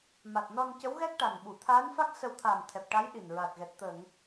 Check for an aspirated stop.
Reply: present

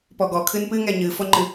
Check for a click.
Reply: present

